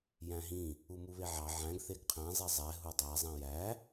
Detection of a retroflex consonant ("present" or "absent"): absent